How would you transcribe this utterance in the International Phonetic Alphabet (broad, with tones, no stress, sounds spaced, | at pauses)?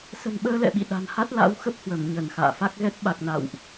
s ə̤˨˩ n ɓ əː˧ l ɛ̰˧˨ ɓ ḭ˧˨ ɗ a̤˨˩ n h a˦˥ t̚ l a̰˧˥ w x ə˦˥ p̚ h w ə˧˩ m ɲ ə˧˩ n x a̰ː˧˨ f a˦˥ k̚ ɣ ɛ˦˥ t̚ ɓ a˨˩ k̚ n a̰˧˨ w ʔ